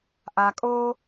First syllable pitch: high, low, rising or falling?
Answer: low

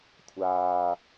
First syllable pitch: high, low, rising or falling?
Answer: low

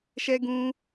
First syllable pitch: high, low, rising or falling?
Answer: high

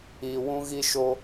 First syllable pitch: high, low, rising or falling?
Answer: low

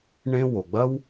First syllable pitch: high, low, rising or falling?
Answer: high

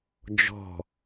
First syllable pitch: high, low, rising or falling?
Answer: falling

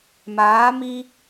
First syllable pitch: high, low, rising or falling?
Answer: rising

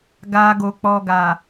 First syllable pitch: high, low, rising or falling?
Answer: low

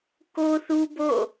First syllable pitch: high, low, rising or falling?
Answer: high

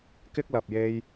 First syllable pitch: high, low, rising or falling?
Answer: high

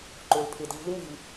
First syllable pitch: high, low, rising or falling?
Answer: low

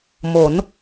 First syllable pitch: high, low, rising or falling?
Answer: rising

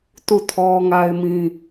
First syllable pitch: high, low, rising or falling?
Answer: falling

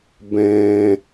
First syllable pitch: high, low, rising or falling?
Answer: low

